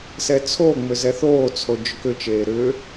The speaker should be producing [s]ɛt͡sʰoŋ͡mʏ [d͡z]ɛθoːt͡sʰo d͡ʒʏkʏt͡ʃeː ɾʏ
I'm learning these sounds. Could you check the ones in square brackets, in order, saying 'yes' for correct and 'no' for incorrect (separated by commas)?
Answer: yes, no